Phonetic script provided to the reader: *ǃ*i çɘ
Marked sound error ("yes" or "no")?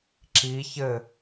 yes